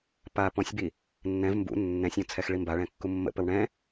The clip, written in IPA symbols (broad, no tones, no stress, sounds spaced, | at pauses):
p a p ɔ̃ sʲ b i | nː ɛ̃ v m b ṵ nː ɛ̃ sʲ ɔ̃ t͡sʰ ɛ x ɭ i m b a ɭ ɛ̃ kː u mː ə̰ p ə w ɳ ɛ̃